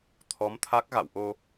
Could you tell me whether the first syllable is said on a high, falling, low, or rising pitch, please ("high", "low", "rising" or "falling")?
rising